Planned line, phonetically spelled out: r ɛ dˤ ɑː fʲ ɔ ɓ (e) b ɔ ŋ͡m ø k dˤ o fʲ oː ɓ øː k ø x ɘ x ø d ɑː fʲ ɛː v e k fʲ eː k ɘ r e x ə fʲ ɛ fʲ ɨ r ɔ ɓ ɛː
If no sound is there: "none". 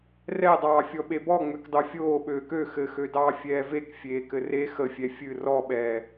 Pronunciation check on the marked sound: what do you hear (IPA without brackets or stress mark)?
e